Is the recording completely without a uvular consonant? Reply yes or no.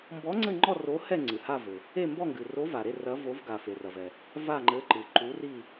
yes